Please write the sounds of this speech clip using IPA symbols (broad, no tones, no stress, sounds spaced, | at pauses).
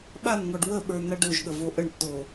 ɓ a n ŋ ɔ ɖ w ə ɓ ə˞ n a ɖ o ʒ ɠ ə v o ʔ ə ɳ tː o